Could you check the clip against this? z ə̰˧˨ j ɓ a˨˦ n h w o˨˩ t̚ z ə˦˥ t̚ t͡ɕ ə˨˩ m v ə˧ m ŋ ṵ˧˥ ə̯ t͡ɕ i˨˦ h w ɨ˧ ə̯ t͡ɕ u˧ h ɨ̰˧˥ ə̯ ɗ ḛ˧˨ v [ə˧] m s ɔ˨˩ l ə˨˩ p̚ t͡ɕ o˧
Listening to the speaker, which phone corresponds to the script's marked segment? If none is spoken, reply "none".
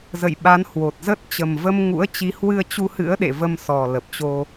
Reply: ə˧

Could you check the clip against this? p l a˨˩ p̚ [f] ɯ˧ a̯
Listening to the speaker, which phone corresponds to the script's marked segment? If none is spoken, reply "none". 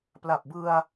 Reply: b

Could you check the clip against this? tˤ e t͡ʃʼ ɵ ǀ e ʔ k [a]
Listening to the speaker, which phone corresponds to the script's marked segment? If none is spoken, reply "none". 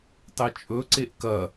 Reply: ɐ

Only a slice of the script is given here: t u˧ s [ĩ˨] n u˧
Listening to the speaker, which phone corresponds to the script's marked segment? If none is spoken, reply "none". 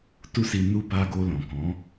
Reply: i˨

